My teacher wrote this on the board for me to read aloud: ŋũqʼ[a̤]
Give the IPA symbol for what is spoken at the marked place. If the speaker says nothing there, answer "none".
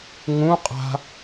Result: a̤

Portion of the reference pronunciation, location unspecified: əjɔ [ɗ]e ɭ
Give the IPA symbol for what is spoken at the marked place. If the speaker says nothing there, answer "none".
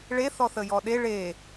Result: ɗ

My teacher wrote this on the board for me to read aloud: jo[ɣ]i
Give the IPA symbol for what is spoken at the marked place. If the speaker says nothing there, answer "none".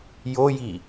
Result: j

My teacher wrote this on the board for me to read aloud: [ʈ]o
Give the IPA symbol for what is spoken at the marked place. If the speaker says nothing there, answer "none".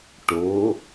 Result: ʈ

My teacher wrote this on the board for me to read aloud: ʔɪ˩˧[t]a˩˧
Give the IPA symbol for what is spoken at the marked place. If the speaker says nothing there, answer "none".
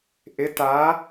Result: t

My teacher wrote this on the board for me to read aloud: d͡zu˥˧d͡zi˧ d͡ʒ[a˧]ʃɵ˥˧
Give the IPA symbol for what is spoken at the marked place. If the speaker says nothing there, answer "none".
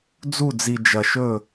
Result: ɐ˧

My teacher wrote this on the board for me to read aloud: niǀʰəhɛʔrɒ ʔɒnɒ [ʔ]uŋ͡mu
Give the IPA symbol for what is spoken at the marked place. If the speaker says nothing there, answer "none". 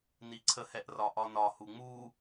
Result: h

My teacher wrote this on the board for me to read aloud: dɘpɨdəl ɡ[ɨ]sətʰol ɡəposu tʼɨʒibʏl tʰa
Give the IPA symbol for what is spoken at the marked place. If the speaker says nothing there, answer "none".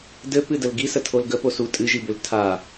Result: i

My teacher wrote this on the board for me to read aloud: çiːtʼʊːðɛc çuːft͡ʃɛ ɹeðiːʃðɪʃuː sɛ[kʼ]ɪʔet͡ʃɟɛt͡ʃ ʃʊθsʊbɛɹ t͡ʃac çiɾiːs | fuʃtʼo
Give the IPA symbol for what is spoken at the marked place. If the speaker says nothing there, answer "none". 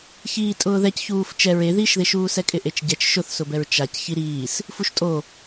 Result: kʼ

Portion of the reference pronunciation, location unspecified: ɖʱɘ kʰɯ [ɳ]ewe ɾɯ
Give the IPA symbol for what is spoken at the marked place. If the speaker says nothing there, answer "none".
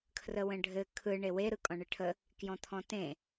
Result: ɳ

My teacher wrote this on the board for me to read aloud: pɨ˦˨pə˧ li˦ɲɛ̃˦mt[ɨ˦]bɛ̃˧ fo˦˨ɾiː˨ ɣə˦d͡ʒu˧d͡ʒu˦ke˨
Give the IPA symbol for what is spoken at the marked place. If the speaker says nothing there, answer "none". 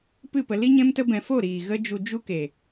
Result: ə˦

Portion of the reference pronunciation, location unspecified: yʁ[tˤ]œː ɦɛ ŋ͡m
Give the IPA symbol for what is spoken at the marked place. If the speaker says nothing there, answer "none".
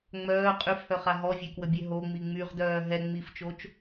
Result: d̪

